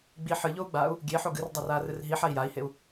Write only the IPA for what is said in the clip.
ɡ͡b i ħ ɨ ʎ o u̯ ɡ͡b aː u̯ | ɡʲ e ħ o ɡ ɨ r dˤ a r aː r ɨ r ɦ i ħ a i̯ j a i̯ h e u̯

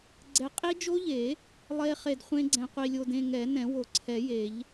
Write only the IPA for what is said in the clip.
ɡ͡ǀ ɛ˦˥ qʼ i˦˥ d͡ʒ o˦˥ ʎ e˨˩˦ | lˠ e˦˥ χ e˧ d χʷ ẽ˦˥ ɡ͡ǀ ɛ̃˧ qʷ i˧ lʲ o˧ d ẽ˧ ŋ ɛ˨˩˦ n ɛ̃˨˩˦ w o˨˩˦ ǀʰ ɛ˨˩˦ j e˨˩˦ ʎ

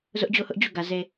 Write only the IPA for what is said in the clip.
z ʊ˦ ʔ d͡ʑ o˦˨ ʊ̯ h ʊ˦ ʔ d͡ʑ u˦˨ ɡ ä˨ z e˨

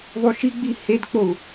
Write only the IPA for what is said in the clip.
ðˤ u ʃ i ɡ͡b i h e d k͡p o u̯

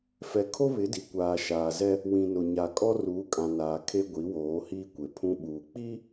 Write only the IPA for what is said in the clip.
f ɛ˨ kʰ o˦ β ɪ˨˦ d i˨ kʷ aː˨ ʃ aː˨ z ɛ˦ | w ĩ˨ n ʊ˨ ɲ a˨ kʼ ɔ˦ r uː˨˦ kʼ ã˨ n aː˨ kʰ e˦ ɡʷ i˨˦ w oː˨˦ h iː˦ kʷ e˨ pʰ ũ˦ ɓ uː˨ k͡p i˦

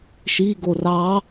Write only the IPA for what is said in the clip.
ʃ i ɡ o r ɑ

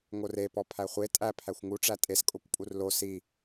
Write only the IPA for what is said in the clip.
ŋ o r e p ɔ pʰ æ χʷ e tʼ æ pʰ æ xʷ ŋ u ʈ͡ʂ æ tʼ e s kʼ o kʷ pʼ u r l o s i

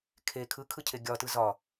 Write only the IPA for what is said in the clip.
kʰ e kʰ ɯ kʰ ɯ cʰ e ɡʲ ɒ t ɯ z ɒ

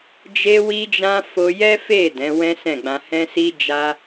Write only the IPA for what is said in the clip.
d͡ʒ e˦ w i˦ d͡ʒ ã˦ f o˧ j ɛ˦ f e˦˨ d ɛ̃˨˦ w ɛ̃˦ s ɛ̃˦˨ ɡ͡b ã˧ h ɛ̃˧ s i˧ d͡ʒ a˦

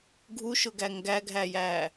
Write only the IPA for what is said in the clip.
ɡʱ u ʃ ʊ ɡ æ ŋ ɡ æ ɡʱ æ j æ

